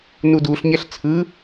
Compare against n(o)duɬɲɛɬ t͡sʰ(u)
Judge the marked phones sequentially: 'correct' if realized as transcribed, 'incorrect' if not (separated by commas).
incorrect, incorrect